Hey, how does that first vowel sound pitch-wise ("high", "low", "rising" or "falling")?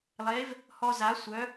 rising